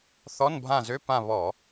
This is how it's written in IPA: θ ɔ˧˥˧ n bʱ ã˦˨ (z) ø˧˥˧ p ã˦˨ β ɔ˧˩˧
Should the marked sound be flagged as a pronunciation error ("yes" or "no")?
no